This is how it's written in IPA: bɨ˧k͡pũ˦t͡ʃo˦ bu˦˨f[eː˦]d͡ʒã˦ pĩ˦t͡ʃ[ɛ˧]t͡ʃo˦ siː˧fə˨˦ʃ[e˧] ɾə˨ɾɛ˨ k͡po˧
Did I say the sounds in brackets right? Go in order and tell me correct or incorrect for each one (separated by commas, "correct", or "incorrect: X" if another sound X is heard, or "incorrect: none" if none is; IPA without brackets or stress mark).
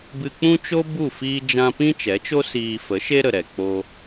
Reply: incorrect: iː˦, incorrect: ɛ˨˦, incorrect: e˦